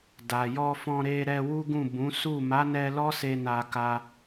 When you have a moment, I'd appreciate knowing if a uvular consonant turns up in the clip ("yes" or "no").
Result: no